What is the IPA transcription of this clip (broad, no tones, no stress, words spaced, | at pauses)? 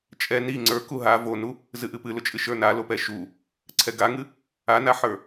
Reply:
t͡ʃʼɛ ni ŋ͡ǀə˞ku ɦa vonu | zɨʔɨpɨ lʊt͡ʃʼɨʃə˞na lopɛʃu | ǀʰɛɡaŋɨ | anaħə˞